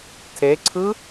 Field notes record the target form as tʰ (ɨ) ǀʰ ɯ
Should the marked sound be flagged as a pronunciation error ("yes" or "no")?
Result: yes